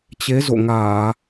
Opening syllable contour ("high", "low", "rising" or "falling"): rising